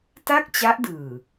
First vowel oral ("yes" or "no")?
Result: yes